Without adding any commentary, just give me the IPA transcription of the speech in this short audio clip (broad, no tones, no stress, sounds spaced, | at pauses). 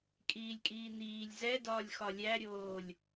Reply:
kʼ iː lʲ kʼ iː n̪ iː lʲ z ɛ d ɒː lʲ x ɒ lʲ æ ɾʲ oː lʲ